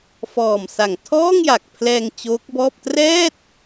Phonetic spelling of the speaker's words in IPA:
f ɔː˨˩ m s a˨˩ ŋ tʰ ɔː˥˩ ŋ j a˨˩ k̚ pʰ l ɛː˧ ŋ t͡ɕ oː˦˥ k̚ b ɔː˥˩ p̚ t r ɛː˥˩ t̚

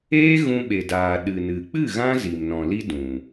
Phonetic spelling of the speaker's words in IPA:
eː˦ ɣ ũ˧ ɓ e˨ d aː˨ ɗ ɨ˨ n ɨ˨ k͡p ɨ˦˨ ɣ ã˦ z i˨ m n ɔ̃˨ l i˦ d ũ˨

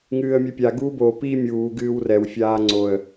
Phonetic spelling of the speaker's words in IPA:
ŋ ɨː ə̯ mʲ ɛ pʲ a ɡ uː b o p i mʲ uː ɡ ɨː w r ɛ w fʲ aː ŋ͡ǀ o ə̯

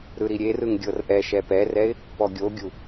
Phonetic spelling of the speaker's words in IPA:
ɾ ɯ ɾ i ɾʲ e r ɯ ŋ ɡʲ ɤ r ʔ ɛ ʃ ɛ p ɛ r ɛ ɪ̯ | p ɔ ɡʲ o ɡʲ u

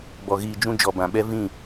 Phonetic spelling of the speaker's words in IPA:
b ɔ˨ ɣ iː˨ d͡ʒ ũ˧ d͡ʒ ɔ˨ b ã˨ ɓ ɛ˦ v ĩ˦˨

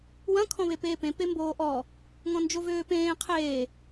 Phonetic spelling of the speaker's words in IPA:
w ɐ̃ kʰ ɔ̃ β e p eː p ẽ p e m b oː ʔ ɔ | ŋ ɔ̃ n d͡ʒ o v øː p ẽː qʰ eː

